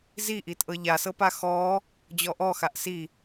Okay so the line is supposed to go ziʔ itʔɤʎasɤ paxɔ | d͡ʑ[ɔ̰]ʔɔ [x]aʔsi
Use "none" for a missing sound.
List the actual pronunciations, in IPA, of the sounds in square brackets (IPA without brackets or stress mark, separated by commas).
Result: ɔ, x